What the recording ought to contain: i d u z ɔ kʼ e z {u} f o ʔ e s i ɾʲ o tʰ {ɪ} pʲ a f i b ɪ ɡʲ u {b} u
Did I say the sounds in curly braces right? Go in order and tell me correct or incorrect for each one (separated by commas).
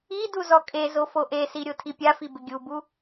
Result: incorrect, incorrect, correct